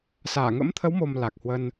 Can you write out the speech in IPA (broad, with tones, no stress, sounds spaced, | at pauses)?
s aː˧˩ ŋ ə̰˧˥ m t̪ʰ ə˨˦ w m o˨˩ m l a˨˩ k̚ h w ə˧ n